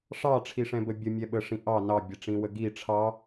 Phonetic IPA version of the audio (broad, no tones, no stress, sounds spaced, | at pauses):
ʂ ɑ ʈ͡ʂʰ i ʂ ɛ̃ b ə bʲ ə mʲ ɛ ɓ ə ʂ ĩ ʔ ɑ n ɑ bʲ ɛ ʈ͡ʂ ĩ w ə ɡ i ʈ͡ʂʰ ɑ